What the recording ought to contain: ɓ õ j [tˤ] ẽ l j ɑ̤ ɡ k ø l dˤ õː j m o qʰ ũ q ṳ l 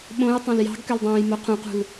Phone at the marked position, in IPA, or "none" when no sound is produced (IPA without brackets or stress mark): tˤ